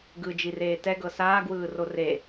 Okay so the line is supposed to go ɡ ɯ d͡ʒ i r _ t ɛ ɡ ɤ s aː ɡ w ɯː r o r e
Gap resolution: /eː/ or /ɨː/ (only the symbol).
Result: eː